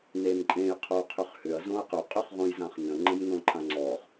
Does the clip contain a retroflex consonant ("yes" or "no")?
no